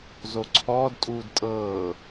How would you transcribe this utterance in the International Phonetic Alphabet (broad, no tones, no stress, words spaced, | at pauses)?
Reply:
zoǀʰɔːdtʼuːd tʼɤː